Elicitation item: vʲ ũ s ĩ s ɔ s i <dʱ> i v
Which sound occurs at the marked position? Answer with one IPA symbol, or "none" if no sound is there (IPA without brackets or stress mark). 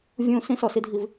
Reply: dʱ